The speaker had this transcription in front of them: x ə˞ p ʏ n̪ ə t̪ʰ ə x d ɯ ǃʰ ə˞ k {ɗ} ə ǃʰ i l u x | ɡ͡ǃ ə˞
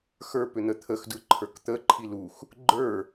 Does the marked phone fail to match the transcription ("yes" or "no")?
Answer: yes